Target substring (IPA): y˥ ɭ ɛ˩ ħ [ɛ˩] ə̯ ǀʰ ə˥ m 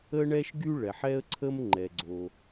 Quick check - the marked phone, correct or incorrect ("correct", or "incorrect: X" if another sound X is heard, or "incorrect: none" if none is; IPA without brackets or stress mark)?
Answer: incorrect: ɛ˥